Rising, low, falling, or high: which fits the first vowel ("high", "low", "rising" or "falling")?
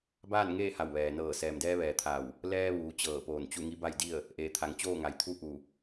falling